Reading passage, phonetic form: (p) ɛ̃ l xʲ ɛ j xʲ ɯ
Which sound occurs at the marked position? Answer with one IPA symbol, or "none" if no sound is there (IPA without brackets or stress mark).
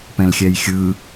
p